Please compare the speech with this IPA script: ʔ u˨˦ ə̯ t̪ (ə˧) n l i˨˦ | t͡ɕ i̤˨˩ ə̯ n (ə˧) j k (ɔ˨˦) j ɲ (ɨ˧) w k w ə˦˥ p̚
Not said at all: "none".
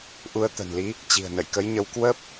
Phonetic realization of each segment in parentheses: ə̤˨˩, ə̰˧˨, ə˨˦, ə˧

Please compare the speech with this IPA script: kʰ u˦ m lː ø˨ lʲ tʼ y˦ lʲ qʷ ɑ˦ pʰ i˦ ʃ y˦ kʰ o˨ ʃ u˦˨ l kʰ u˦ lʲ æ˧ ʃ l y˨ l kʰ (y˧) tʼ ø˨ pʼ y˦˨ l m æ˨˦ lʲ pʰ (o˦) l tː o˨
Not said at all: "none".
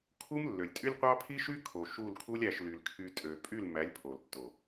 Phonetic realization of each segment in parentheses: y˧, o˨

